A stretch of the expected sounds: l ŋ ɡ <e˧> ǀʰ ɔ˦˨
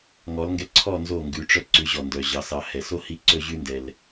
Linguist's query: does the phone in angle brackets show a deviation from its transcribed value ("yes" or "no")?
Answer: yes